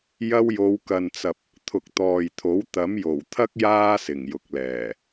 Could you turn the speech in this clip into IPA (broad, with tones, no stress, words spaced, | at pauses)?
jɐ˧wjo˨˧wkɐ˨nt͡sɐ˨p̚ | t̪ʰʊ˨k̚t̪ɔː˨jt̪ʰo˨˥w t̪ɐ˨˥mjo˨˩wt̪ʰɐ˥k̚ jaː˥sɪ˨˩ŋ jʊ˨k̚lɛː˨˩